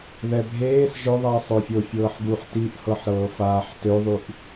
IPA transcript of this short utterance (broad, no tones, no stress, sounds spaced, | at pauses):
ð ɛ bʱ eː s ʒ ɵ ðˤ ɛ sˤ ɵ fʲ o fʲ ɤː ħ ɡ u ħ t i ʔ h ɤ ħ ɾ ɤː f aː ħ t ø ðˤ y ʔ